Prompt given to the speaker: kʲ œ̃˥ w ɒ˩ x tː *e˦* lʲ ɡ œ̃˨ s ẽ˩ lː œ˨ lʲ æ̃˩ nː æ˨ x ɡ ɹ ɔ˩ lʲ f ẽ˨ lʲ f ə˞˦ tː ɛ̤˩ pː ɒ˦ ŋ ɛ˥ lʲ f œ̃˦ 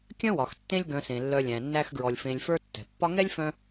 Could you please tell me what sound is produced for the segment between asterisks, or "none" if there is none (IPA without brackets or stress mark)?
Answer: ẽ˦